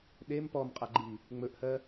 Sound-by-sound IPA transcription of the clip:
ɗem pɔmqʼaɡ͡ǃi | ŋ͡mɵʔhɜ

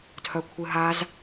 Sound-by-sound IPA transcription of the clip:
tʰœkʷʰɨɦaz

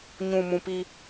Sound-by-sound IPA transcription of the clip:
ɲũ˨mũ˨pi˦

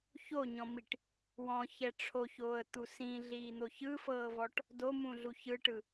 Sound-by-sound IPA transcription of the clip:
çoɲɔ̃miʈ | wɔ̃çɛ ʈ͡ʂʰoçoːə̯t̪u sĩɮiːn̪o çɯfɤːvɔʈ | domũɮu çɯʈɯ

